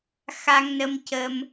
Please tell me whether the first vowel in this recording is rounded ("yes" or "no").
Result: no